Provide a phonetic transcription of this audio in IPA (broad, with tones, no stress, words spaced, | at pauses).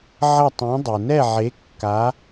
ʕɐ˥˧tˤɛ̃˧˥ dˤu˨nɛ˥˧ʕe˧˥ kːa˧˥